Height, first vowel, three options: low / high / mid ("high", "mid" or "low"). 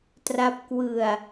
low